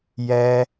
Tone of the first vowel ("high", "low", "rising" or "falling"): high